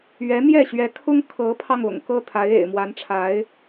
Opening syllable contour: rising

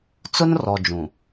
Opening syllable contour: high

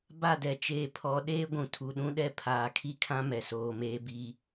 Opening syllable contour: falling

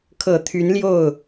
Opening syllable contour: low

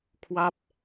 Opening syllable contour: falling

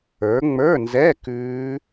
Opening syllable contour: rising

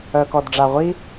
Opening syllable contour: low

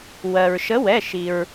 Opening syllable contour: low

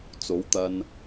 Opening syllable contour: rising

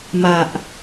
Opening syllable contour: low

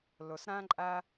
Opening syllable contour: low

